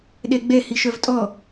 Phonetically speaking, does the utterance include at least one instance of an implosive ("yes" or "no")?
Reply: yes